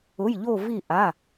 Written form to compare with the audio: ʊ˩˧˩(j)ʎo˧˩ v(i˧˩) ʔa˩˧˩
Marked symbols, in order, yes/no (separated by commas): yes, yes